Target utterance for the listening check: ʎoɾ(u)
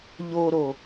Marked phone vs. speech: incorrect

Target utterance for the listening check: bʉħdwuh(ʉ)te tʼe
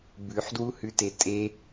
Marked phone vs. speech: correct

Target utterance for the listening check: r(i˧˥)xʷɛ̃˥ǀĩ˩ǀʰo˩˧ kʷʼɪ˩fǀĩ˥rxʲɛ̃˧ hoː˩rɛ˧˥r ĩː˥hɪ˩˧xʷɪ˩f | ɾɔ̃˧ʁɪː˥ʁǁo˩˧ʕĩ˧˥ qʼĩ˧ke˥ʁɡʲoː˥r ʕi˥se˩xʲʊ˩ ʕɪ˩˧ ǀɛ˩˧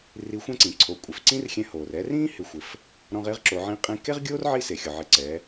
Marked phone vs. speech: correct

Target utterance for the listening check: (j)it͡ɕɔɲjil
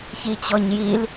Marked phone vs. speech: incorrect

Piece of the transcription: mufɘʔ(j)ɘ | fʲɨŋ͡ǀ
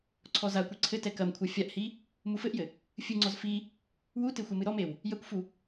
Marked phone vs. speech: correct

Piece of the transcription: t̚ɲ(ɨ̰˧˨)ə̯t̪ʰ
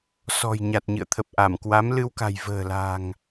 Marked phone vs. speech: correct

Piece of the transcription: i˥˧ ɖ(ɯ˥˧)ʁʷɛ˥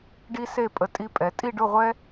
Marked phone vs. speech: incorrect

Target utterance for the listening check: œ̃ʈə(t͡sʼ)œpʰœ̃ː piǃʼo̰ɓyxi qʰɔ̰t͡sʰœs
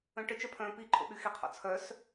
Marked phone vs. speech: incorrect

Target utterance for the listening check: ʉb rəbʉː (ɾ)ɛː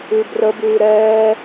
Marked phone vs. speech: correct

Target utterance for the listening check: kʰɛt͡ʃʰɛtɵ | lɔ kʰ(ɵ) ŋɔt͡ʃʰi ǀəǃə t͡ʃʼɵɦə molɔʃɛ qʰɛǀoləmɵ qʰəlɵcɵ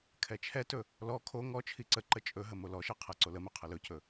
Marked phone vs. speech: incorrect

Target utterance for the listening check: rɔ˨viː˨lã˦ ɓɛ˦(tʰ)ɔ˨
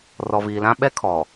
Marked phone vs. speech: incorrect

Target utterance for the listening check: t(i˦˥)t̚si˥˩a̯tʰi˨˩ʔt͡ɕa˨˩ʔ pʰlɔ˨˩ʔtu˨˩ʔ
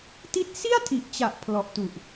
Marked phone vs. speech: correct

